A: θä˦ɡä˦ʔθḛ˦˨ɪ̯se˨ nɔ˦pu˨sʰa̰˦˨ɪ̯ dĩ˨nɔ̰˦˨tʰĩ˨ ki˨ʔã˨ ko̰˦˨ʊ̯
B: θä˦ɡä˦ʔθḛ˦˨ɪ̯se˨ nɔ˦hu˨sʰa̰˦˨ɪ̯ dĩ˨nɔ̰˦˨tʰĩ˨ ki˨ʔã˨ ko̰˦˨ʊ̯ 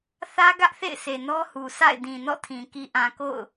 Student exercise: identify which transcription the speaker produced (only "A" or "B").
B